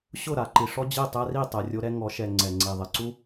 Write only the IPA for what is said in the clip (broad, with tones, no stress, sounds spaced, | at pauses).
ɕ ʊ˦˨ ɾ a˨ ǃ i˨ ʂ ɔ˦ d͡ʑ i˦˨ tˤ ɛ˦ r i˦˨ tˤ ɛ˨ rʲ o˦ ɾ ɛ˦ ŋ ɔ˨˦ ʃ ɛ˨ ŋ͡ǀ ɛ˨ ŋ͡ǀ i˨ ðˤ ɪ˨ ǀ u˦